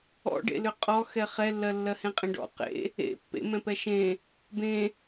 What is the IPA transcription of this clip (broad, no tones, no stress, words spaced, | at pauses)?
ɔ̰ɖḛlʏ qʼɔ xɛχɛlːɜ lːɜhẽqʼẽɖɔ̰ qḛ | ḛ pːḛ mɛ̃pɛʃẽ | bẽ